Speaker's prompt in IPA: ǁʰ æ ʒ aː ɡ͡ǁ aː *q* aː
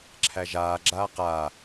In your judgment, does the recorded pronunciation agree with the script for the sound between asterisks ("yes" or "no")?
yes